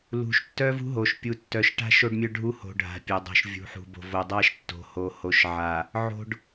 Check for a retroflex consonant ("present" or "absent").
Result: present